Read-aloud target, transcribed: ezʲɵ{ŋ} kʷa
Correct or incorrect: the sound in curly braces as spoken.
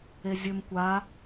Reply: incorrect: m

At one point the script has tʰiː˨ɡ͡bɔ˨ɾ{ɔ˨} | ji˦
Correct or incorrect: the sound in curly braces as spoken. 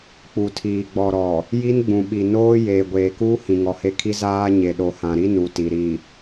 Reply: correct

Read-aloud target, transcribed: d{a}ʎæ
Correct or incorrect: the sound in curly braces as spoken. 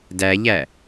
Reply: incorrect: æ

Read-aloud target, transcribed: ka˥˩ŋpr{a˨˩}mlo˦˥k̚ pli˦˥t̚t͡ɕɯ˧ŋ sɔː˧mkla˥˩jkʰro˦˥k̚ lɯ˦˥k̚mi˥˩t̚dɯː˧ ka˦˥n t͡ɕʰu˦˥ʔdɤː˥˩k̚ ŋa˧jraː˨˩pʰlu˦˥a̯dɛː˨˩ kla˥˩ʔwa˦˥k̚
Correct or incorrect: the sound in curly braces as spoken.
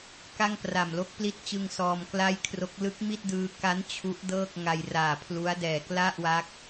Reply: correct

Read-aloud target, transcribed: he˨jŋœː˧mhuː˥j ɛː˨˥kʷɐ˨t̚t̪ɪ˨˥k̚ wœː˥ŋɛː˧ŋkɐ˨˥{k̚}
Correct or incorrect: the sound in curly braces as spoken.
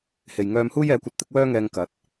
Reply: incorrect: t̚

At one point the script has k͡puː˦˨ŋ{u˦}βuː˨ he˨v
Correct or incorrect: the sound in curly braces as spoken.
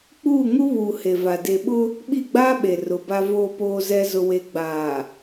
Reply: correct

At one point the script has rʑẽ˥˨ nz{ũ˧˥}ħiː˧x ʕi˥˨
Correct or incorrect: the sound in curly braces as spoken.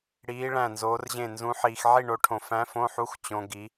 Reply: correct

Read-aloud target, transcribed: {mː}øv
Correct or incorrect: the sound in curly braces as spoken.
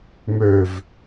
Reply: incorrect: m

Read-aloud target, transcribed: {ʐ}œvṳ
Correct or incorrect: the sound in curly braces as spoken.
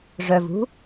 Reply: correct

